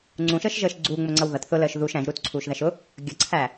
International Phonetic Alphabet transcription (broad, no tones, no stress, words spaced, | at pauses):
ŋ͡ǀũʃəːʃʒəːʃ ɡ͡ǀuːŋ͡mʊŋ͡ǀʌw ðʌt θʊləːʃ ðuʃ æ̃ʒɾuːtǀʰuːʃðæʃ ʊ | ɡʲʌǀʰæ